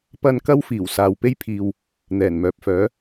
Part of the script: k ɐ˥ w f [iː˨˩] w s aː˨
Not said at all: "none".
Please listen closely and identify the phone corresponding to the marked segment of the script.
iː˨˩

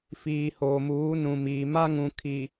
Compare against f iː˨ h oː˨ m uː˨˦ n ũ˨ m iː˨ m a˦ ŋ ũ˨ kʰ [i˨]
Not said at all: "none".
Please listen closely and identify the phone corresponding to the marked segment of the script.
i˨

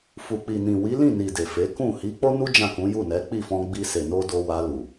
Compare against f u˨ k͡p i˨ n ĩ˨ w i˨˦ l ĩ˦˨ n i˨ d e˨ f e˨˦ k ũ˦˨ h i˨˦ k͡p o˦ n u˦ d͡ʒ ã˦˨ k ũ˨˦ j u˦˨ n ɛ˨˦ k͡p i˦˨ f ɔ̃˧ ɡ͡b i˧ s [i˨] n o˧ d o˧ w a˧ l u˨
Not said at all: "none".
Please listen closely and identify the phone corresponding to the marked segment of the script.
e˨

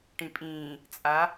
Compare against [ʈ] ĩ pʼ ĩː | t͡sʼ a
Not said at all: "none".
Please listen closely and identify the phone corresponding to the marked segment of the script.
ʈ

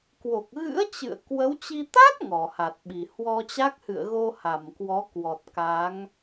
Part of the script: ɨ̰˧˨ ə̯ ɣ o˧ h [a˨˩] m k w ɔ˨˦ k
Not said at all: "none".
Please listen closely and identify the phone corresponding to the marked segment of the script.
a˧˩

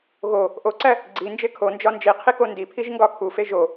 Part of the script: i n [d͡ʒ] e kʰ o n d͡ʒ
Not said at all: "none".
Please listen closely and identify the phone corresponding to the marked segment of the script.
d͡ʒ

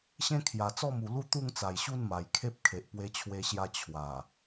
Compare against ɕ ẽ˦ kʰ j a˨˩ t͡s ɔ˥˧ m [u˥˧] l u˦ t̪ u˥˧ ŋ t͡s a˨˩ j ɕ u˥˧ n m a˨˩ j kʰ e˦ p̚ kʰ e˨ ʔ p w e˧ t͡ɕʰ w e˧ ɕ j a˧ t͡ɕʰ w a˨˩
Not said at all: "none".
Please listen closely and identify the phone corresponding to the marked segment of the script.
u˨˩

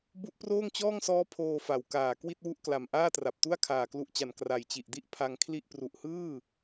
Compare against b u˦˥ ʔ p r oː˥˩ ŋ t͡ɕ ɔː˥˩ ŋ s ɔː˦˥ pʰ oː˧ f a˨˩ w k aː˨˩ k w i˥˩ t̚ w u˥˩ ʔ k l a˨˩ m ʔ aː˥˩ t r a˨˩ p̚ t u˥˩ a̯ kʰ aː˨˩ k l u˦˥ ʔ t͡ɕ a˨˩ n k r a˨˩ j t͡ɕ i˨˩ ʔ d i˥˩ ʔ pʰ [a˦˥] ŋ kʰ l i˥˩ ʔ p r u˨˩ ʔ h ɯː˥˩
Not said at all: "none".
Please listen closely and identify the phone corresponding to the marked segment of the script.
a˧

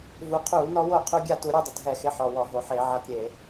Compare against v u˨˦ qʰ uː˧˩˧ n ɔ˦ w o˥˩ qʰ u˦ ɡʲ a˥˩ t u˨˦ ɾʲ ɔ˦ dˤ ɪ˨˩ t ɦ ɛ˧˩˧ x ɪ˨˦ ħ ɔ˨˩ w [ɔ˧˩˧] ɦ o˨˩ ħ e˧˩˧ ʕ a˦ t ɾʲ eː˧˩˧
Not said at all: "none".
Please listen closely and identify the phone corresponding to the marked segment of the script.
ɔ˧˩˧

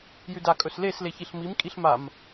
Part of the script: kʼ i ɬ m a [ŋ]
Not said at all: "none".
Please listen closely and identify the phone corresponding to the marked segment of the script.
m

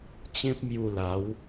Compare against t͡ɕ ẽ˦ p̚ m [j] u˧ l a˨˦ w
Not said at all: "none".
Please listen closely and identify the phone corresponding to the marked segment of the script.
j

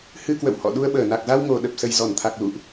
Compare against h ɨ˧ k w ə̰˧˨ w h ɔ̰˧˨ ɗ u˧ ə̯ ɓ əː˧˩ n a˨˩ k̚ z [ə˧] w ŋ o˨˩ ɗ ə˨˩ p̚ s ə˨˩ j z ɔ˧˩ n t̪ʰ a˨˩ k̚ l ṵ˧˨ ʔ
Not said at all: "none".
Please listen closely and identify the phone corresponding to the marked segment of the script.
a˧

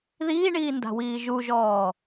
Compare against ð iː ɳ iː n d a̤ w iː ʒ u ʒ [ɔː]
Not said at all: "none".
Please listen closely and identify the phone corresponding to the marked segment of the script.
ɔː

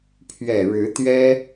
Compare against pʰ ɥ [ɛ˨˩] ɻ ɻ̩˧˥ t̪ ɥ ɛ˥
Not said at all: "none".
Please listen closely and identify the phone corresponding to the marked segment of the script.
ɛ˨˩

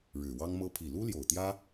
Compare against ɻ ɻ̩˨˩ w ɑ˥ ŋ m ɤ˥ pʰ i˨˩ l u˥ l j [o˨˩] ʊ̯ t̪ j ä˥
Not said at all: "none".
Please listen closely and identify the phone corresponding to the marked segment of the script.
o˨˩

